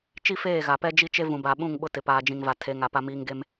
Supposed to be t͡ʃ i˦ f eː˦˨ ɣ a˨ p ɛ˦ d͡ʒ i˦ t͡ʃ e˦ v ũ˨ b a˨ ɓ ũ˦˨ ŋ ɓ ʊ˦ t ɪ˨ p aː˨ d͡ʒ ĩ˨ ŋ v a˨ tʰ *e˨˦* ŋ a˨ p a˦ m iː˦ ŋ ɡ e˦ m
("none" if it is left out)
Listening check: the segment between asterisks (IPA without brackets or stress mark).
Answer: e˨˦